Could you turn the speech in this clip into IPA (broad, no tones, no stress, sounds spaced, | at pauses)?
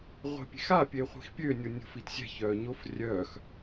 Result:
ʁʷ e̤ pʲ e̤ x a pʲ e χʷ i̤ x pʲ ø nʲ o nʲ o̤ f i t sʲ ɛ̤ ç œː ɲ o f rʲ œː x